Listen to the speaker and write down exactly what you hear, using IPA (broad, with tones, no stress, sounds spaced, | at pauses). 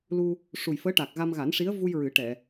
l u˧ | ʂ u˨˩ j f əː˧˥ ʈ aː˨˩ k̚ ɣ a˧ m ɣ a˨˩˦ n ʂ i˧˥ ə̯ v u˧ j ɹ ɨ˨˩˦ ʈ ɛ˨˩˨